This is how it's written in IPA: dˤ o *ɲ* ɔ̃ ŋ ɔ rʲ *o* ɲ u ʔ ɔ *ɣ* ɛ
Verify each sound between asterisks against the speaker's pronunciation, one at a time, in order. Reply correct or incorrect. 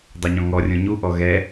correct, incorrect: õ, correct

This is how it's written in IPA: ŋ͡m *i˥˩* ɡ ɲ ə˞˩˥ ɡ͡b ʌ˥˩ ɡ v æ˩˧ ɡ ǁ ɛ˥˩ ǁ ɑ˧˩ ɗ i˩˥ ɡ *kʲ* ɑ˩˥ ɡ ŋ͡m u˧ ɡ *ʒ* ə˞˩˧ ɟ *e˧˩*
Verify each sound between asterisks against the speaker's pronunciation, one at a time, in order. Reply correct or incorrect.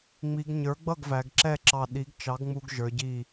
incorrect: i˩˧, incorrect: t͡ʃ, correct, incorrect: i˧˩

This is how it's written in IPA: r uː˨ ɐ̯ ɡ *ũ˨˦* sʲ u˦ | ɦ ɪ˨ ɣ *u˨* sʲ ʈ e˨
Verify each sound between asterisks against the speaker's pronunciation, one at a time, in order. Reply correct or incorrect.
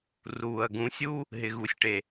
correct, correct

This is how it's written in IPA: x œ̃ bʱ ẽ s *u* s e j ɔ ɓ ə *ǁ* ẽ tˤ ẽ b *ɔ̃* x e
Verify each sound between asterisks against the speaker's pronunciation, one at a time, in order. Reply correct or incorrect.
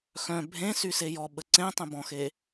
incorrect: y, incorrect: ǀ, correct

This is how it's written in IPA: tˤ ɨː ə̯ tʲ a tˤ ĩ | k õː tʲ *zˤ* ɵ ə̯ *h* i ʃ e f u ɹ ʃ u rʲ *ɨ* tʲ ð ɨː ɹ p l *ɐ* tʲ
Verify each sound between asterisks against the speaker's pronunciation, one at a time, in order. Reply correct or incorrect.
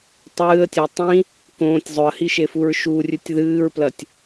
correct, correct, correct, correct

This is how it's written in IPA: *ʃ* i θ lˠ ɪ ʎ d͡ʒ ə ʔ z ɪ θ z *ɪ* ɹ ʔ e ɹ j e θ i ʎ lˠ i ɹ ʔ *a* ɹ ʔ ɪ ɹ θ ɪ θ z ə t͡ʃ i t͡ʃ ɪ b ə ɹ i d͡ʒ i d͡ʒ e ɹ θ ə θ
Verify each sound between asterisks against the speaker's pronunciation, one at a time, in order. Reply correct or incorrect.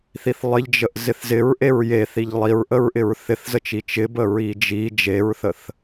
incorrect: θ, correct, incorrect: ə

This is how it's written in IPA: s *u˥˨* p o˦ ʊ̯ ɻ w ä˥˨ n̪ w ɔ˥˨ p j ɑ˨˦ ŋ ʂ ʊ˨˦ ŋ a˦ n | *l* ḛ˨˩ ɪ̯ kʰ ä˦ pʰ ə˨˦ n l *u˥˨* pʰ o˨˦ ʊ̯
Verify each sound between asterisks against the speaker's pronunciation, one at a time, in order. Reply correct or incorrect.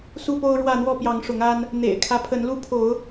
correct, incorrect: n̪, incorrect: u˦

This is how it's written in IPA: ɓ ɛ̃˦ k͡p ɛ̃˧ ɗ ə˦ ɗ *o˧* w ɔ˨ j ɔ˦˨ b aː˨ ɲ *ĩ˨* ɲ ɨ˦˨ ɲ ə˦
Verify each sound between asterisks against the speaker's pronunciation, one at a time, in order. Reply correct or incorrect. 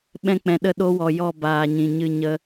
correct, correct

